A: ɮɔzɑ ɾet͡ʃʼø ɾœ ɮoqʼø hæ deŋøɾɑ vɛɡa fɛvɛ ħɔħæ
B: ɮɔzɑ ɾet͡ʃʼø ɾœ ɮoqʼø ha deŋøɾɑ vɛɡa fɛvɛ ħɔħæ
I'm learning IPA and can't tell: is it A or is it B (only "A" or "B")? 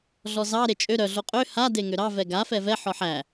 B